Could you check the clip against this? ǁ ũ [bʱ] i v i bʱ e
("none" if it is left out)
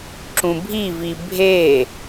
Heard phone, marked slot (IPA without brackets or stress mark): bʱ